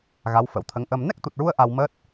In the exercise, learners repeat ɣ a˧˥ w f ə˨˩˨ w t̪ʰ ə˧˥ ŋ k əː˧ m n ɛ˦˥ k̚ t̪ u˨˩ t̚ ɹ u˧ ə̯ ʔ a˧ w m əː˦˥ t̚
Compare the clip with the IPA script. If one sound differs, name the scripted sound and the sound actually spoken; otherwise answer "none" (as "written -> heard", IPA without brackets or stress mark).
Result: k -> ʔ